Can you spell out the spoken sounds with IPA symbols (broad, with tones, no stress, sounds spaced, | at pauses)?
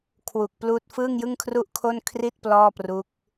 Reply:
kʰ w u˨˩ k̚ p l uː˥˩ t̚ f ɯː˥˩ ŋ j ɯ˥˩ ŋ kʰ r u˥˩ ʔ kʰ o˥˩ n kʰ r i˥˩ t̚ p l ɔː˥˩ p r u˦˥ k̚